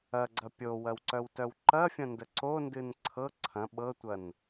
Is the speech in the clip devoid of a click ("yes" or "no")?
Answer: no